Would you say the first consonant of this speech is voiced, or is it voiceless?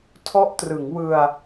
voiceless